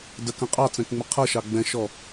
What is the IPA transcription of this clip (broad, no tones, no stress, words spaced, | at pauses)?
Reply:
dəkə̃ qʼɑt͡sɛ̃kŋ͡mə qʰʌʃɑ ɡ͡bɛ̃ʃɔ